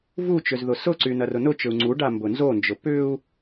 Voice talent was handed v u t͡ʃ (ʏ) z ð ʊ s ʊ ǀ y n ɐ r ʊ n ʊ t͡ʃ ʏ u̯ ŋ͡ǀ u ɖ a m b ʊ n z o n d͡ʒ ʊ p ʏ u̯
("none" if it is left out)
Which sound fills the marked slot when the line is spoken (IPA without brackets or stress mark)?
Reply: ʏ